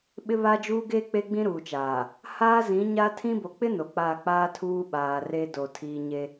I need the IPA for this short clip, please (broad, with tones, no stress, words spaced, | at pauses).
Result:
ɓɪ˦βa˦d͡ʒuː˦ ɡe˦ k͡pe˦ɡ͡bĩ˦ɾuː˨t͡ʃaː˨ | haː˦zĩ˨˦ɲa˦ tʰĩ˦ bo˨k͡pɪ˦ no˨k͡pa˦˨ k͡paː˦tʰuː˦ɓaː˨ re˦ do˨ tʰiː˦ ɲe˦